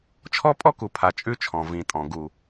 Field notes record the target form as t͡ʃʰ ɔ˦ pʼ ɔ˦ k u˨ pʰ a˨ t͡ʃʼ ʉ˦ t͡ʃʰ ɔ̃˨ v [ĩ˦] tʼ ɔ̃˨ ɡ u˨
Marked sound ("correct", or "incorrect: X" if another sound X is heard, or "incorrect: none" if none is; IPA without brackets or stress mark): incorrect: ĩ˨